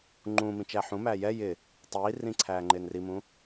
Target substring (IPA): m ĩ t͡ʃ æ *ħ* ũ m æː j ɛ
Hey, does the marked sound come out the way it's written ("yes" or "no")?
yes